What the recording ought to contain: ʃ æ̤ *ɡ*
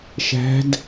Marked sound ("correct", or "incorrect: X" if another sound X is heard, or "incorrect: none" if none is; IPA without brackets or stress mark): incorrect: d